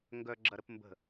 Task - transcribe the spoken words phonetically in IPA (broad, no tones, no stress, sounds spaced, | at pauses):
ŋ ɡ œ ɡ͡ǁ ɐ ɾ ə p m b ə̤